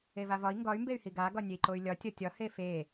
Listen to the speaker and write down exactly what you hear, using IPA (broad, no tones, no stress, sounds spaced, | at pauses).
e v a v ɒ i̯ ŋ ɡ ɒ y̯ m b e y̯ h i ɡ a ɡ ɒ nʲ e i̯ ǃ o y̯ lʲ ɒ tʲ ɒ tʲ ɒ h e f e